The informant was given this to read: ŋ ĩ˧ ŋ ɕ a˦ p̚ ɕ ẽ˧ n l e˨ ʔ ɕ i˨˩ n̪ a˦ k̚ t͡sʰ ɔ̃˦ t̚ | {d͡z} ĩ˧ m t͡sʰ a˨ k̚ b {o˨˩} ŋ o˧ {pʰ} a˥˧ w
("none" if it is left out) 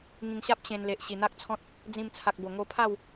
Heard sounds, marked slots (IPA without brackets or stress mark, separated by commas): d͡z, o˨˩, pʰ